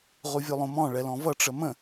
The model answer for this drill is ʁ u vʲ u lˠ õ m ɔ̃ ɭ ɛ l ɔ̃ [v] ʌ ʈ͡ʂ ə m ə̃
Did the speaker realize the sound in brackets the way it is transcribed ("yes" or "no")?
yes